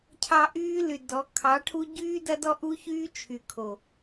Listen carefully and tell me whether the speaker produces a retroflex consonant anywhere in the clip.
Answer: yes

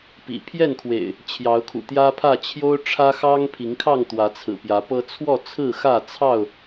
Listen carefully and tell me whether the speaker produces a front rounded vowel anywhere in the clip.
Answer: no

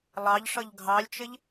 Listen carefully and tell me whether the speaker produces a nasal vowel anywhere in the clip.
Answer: no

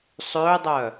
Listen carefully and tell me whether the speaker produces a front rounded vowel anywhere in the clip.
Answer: yes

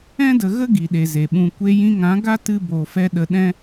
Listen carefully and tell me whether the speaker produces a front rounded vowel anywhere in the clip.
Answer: no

